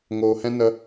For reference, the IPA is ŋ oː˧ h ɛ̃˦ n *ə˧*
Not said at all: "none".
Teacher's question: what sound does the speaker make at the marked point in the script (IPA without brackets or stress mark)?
ə˧